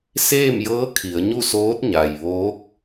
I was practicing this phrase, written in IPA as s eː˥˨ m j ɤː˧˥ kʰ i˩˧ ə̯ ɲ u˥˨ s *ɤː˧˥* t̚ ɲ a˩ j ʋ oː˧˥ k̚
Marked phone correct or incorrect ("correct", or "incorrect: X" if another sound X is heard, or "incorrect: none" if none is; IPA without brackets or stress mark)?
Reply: incorrect: oː˧˥